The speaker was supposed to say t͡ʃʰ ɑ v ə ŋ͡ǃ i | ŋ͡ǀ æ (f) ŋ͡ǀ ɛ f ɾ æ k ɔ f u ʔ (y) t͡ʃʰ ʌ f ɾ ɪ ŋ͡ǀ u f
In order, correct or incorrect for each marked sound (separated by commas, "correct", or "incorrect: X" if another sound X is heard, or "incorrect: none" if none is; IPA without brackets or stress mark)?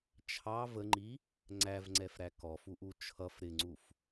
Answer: incorrect: v, incorrect: u